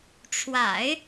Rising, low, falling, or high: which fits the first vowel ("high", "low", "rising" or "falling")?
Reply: low